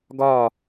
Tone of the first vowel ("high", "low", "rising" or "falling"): falling